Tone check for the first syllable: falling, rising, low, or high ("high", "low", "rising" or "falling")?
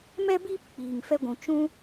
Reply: high